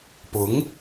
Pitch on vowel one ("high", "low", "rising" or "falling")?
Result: rising